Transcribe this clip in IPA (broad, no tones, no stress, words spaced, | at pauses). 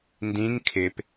ndĩŋ kʰɪp